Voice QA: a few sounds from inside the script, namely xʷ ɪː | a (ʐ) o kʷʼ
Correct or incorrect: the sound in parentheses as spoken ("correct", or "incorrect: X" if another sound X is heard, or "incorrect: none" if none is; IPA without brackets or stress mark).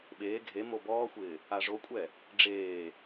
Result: correct